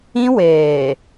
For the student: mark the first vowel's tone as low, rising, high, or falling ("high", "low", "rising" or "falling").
high